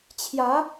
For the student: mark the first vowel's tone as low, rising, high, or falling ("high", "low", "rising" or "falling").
rising